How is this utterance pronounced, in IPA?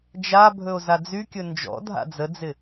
d͡ʒabʱɵo̯ zad͡zykʲɵ nd͡ʒɔ̰dʱa̰ d͡zəd͡zɪ

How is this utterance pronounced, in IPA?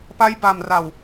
pa˦˥jba˨˩m ra˨˩w

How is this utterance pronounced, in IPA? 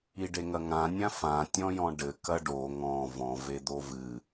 iɖeŋɐŋã nʲãfã tʲɔ̃jɔ̃ɖɘ kɐɖo ŋɔ̃ vɔ̃ ved̪ovɨ

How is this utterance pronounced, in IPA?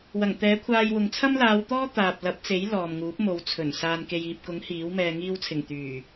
wɐ˨˩ŋt̪ɛː˨˥kʷʰaː˧jwʊ˨ŋ t͡sʰɐ˥mlaː˨˧wt̪ɔː˥ t̪aː˨p̚lɐ˨˥p̚t͡se˨˥j lɔː˨mŋuː˨˥p̚mo˨˧wt͡sʰɵ˨˩n saː˨nke˨jiː˨p̚kʊ˨˥ŋ hiː˨˥wmɛː˧ ŋiː˧wt͡sʰɪ˨˩ŋ t̪yː˨˩

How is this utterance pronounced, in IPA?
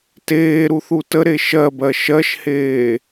teːɾuθu təɾe ʃɜbɜ ʃɜʃheː

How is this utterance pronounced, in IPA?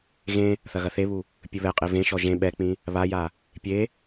ɣẽ | θɐɣɐθeβu | pʲɘβɛqʼe vẽʃɔ ʒẽ ɓɛk͡pĩ | βaja | pʲe

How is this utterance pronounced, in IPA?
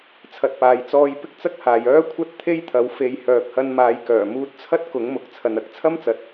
t͡sʰɐ˨t̚paː˨j t͡sɔː˧jpɪ˥k̚t͡sɐ˥k̚haː˨j œː˥kʷʰɐ˥t̚ t̪ʰe˥jt̪ʰɐ˨˥w fe˨˧jhœː˨k̚hɐ˧nmaː˨˧j kœː˨˩muː˧t̚t͡sʰɐ˥t̚ kʊ˨˥ŋmʊ˨k̚ t͡sʰɐ˨nɐ˧k̚ t͡sʰɐ˥mt͡sɐ˨˥t̚

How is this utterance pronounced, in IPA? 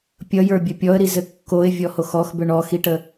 pʲʌjə˞bʲə pʲɔə̯ɾi zɘkːoɪ̯ vʲɔhoxɔxbʏ ɳɔxiʈə

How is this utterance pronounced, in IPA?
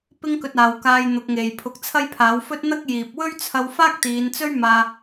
pɪ˥ŋkɵ˧t̚aː˨wkaː˧j n̪ʊ˨˥k̚ŋe˨j pʰʊ˨˥k̚t͡sʰɐ˥jpʰaː˨˥w fɵ˥t̚n̪ɐ˥k̚jiː˨p̚ wɵ˥ɥt͡sʰɐ˧wfaː˥k̚ t̪iː˨˧nt͡sɵ˥ɥ maː˧

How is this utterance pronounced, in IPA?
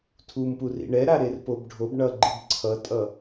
tʰumpurḭ ɳɛɾa ɾerpobɖʱob ɳʌ ɡ͡ǃɯbǀʰʌtʼʌ

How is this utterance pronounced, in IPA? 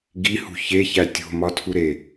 ɡihṳ çeçæ tʲo̤mɒtʰuɾe

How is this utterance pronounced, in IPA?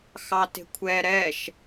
xɑte̤kʷʰɛ ɾɛʃ

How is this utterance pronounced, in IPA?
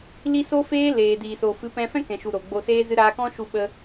li˦ so˦feː˦ leː˨diː˨so˨ fɨ˨˦pɛ̃˧ fɛ̃˦kɛ̃˨ʃu˨ ɾo˨ɡ͡bo˧seː˦ zɨ˧ɾaː˧kɔ̃˦ ʃu˧ɓə˧

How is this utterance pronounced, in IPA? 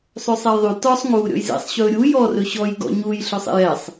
sˤøsˤɛjðˤy tɔsˤ ŋuːɾʲɔ̰jzḛsˤɕɵː ɾʲu jɔrɵ ɕɔjɡɔ̰ ɲuj ɬøsˤḛjɛsˤ

